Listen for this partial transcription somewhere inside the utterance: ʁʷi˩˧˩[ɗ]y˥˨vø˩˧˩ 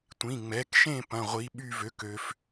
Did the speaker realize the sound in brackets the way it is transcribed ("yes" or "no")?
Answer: no